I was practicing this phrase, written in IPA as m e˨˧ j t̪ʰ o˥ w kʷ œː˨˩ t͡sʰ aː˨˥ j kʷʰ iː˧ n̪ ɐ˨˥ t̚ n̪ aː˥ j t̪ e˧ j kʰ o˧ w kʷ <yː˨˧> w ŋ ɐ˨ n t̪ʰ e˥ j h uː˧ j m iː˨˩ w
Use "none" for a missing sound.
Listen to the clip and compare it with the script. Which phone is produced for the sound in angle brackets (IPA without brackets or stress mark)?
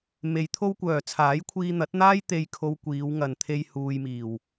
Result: iː˨˧